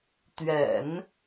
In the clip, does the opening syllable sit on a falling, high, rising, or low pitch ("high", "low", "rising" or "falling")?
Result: low